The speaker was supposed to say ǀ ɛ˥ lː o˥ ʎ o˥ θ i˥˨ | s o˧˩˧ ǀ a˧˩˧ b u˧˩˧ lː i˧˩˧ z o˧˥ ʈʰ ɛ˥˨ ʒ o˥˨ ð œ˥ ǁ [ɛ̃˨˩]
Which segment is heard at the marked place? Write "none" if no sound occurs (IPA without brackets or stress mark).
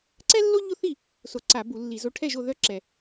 ɛ˨˩